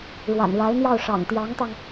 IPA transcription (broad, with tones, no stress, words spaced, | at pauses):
ɻwa̰˨˩nɻa˧˥ɪ̯n̪jɑ˥˩ʊ̯ ʂɑ̰˨˩ŋt̪jɑ˧˥ŋt̪ɑ˧ŋ